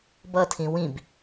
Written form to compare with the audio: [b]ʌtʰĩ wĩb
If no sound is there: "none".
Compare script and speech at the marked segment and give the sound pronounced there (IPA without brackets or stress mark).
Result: b